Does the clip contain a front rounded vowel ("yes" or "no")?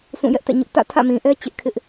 no